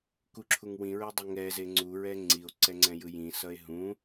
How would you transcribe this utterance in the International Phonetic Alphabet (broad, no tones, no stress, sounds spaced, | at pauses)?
k u ǁʰ u ŋ w ĩ ɹ e dˤ e ŋ ɛ z e ŋ͡ǀ u ɹ ɛ ŋ͡ǀ i o̯ ǀ ɛ ŋ͡ǀ ɛ̃ j ɯ j ĩ s ʌ e̯ ɦ ũ